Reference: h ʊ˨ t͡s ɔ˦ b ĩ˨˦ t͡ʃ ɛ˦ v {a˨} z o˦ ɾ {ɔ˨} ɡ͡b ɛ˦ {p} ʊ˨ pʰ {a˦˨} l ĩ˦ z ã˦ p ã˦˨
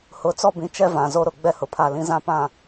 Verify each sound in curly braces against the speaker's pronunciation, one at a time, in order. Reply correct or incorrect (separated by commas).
incorrect, incorrect, incorrect, correct